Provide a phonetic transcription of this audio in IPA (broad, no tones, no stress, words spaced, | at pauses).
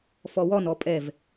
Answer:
fɔwɔn ɔpʼɛv